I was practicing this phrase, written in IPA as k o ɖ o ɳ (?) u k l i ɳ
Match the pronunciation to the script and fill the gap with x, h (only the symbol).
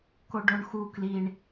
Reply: x